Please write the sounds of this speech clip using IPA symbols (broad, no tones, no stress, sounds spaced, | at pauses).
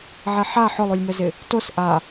ʕ e ħ a ħ ʊ lˠ u lʲ m ɛ z ɪ | t o s ʔ a